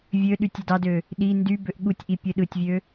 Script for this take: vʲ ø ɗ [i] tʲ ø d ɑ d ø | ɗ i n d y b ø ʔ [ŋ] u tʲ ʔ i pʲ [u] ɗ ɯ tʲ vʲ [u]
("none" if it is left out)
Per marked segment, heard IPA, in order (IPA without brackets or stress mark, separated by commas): y, ɠ, ø, ø